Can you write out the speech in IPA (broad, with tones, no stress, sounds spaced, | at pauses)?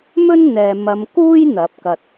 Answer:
m ɵ˥ n n̪ ɛː˨ m ɐ˨˧ m k uː˥ j n̪ ɐ˨˥ p̚ k ɐ˧ t̚